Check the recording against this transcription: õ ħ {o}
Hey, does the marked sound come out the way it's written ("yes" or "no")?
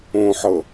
no